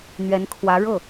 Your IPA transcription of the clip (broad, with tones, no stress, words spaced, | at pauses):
n̪ɥɛ˧˥nkʰwä˧˥ ɻɤ˥˩